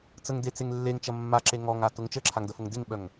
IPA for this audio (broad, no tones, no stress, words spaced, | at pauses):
t͡səŋdet͡seŋ lːeŋt͡ʃɐ mːaǁe ŋɔŋatʊŋ t͡ʃəǁʰaŋdəfʊŋ dɪŋɓœŋ